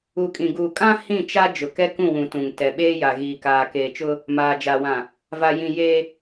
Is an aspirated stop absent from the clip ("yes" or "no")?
yes